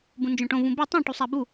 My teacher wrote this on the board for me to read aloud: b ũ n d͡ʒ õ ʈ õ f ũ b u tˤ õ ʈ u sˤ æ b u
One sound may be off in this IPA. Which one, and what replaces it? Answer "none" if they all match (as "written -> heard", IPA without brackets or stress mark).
f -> v